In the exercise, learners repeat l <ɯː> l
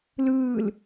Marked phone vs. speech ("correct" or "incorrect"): correct